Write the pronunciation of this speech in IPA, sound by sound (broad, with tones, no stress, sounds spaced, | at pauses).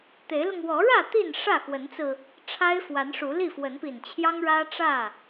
t̪ e˨˦ ɪ̯ l ʊ˧ ŋ w ɔ˨˦ ɻ ä˥˨ t̪ i˥˨ n ʂ ä˥˨ x w ə˨˦ n t͡s ɹ̩˧ | ʈ͡ʂʰ a˦ ɪ̯ f w a˨˦ n ʂ u˨˦ l i˥˨ f w ə˨˦ n p i˨˩ n t͡ɕʰ j ɑ˦ ŋ ɻ ä˦ ʈ͡ʂ ä˥˨